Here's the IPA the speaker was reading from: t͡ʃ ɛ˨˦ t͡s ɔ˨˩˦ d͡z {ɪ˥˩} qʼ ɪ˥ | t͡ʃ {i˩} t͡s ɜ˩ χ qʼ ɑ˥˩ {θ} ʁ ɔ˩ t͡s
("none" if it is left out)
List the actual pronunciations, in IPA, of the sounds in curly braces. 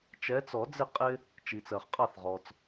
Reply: ɪ˥˩, i˩, θ

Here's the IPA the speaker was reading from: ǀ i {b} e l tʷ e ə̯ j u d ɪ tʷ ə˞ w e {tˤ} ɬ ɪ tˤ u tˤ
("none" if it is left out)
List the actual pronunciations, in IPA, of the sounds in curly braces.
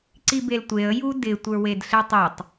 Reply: b, d

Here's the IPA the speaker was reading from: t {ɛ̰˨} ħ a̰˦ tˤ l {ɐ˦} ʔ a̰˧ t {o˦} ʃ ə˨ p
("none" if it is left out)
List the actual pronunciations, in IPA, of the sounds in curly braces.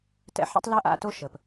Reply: ɛ̰˧, ɐ˦, o˦

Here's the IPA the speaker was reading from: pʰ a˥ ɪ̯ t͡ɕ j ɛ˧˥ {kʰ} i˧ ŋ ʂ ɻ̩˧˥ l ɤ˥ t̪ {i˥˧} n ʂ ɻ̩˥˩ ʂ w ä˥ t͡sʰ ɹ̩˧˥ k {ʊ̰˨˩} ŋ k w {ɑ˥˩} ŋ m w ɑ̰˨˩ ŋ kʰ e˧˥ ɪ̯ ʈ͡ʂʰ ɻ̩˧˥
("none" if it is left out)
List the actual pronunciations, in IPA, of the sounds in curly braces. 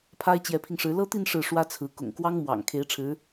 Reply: pʰ, i˥˧, ʊ̰˨˩, ɑ˥

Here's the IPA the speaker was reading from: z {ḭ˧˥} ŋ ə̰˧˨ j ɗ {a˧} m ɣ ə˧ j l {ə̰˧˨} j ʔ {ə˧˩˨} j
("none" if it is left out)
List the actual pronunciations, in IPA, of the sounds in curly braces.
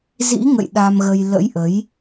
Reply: ḭ˧˥, a˧, ə̰˧˥, ə˨˦

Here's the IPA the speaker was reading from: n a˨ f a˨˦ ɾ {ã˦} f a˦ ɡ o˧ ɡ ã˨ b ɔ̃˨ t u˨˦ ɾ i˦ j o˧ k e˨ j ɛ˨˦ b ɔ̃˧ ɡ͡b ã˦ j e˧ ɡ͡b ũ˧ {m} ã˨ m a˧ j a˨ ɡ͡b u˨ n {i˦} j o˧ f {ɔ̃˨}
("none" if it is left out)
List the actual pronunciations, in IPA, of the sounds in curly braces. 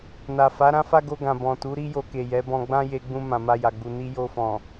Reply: ã˦, m, i˧, ɔ̃˨

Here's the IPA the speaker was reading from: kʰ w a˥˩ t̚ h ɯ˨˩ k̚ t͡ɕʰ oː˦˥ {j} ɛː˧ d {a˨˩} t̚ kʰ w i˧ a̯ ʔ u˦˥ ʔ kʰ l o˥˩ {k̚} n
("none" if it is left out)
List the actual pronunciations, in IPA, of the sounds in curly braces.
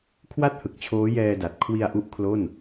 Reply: j, a˨˩, none

